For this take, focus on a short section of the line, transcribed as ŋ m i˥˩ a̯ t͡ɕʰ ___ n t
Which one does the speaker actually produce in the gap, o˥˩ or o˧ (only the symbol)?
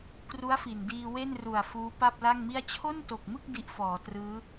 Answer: o˥˩